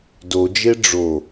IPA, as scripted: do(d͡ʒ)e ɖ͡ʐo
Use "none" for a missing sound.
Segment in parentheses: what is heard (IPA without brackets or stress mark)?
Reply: d͡ʒ